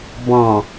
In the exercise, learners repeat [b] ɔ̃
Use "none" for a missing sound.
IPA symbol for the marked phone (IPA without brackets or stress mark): b